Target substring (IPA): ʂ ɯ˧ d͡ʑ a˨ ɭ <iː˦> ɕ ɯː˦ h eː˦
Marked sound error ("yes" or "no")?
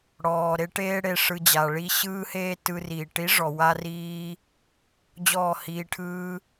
yes